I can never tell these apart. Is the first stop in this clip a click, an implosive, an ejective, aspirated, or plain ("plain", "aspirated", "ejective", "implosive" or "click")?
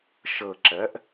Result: click